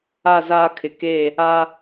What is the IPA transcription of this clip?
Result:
a˦˨ z aː˦ kʰ ɪ˨ k e˦˨ | a˦

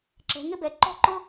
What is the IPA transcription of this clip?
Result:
ǁ ɛ̤˩˧ ŋ ɪ˥ b ɛ˩˧ ǃ ɔ̤˥ ǃ ʊ˥

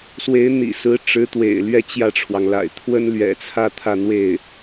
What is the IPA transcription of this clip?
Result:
s w e˧˥ ɪ̯ n̪ ḭ˨˩ s ɹ̩˧˥ ʈ͡ʂ ɻ̩˧˥ t̪ w ḛ˨˩ ɪ̯ l ɥ ɛ˥˧ t͡ɕ j ä˥˩ ʈ͡ʂʰ w ɑ˩ ŋ l a̰˨˩ ɪ̯ t̪ʰ w ə˥ n l ɥ ɛ̰˨˩ t͡sʰ ä˥˧ t̪ʰ ä˥˧ n̪ w e˥˩ ɪ̯

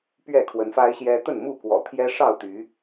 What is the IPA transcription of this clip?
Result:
p ɥ ɛ˥˨ kʰ w ə˨˦ n f a˦ ɪ̯ ɕ j ɛ˦ t̪ ə˥˨ n m u˥˨ k w ɔ̰˨˩ t̪ʰ j ɛ˦ ʂ ɑ˥˨ ʊ̯ t̪ y˨˦

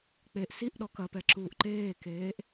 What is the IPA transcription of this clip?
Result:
k͡p e ʔ s i ʔ ɗ ɔ k ɐ p ɛ ǁ uː ʔ ǃ eː k eː ʔ

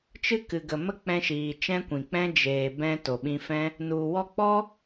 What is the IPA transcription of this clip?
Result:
t͡ʃ ɨ˦ k ɨ˨ ɡ ə˨ m ə˦ k͡p ɛ̃˧ ʃ iː˨ t͡ʃ ɛ̃˦ kʷ ĩ˨ k͡p ɛ̃˦ d͡ʒ eː˨ b ɛ̃˧ t o˨ ɓ ĩ˧ f ɛ̃˦ | n u˨ w ɔ˧ k͡p ɔ˦

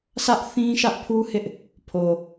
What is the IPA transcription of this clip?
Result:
s ä˦ ʔ θ ĩ˦ ʃ ä˦ ʔ pʰ u˦ h ɪ˦ ʔ | pʰ o˨

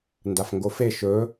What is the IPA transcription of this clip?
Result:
n d a f ŋ ɡ o f e ʃ ɵ

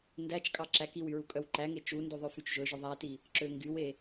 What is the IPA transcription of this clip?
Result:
n d æ t͡ʃ kʼ ɑ ǁ æ k i w y ɹ u kʼ œ w ǃ æ ŋ e t͡ʃ u n d u ðˤ ø f y t͡ʃ ʒ ɵ ʒ ɵ ðˤ æ t i | ǁ ø ŋ ɡ y w e

